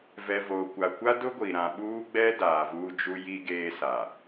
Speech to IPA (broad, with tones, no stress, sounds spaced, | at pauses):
v ɛ˨ v o˨ kʷ a˨ kʷ a˦ d ʊ˦ ɡʷ i˨ ɾ ã˨ ɓ uː˦ ɡ͡b ɛ˦ d aː˨ v uː˦ d͡ʒ u˦ j i˦ ɡ eː˦ s a˨